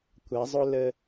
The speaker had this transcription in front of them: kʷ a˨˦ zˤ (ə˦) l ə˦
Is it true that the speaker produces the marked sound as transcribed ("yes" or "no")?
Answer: no